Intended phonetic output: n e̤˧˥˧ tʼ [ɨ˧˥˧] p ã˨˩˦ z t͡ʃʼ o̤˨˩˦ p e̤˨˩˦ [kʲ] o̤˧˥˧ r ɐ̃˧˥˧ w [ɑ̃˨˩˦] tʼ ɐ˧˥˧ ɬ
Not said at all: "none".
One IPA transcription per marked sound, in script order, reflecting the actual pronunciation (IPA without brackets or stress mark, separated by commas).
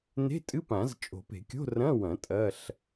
ɨ˧˥˧, kʲ, ɐ̃˨˩˦